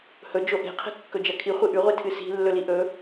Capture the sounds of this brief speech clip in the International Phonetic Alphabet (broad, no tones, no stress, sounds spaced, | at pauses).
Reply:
h ɵ d͡ʒ o ʔ e̤ qʰ e̤ kː ɵ d͡ʒ ɐ kʰ i χʷ ɨ ʔ ʉ ʁʷ i tʰ ɨ s i̤ lː ɵ l i ʔ ɵ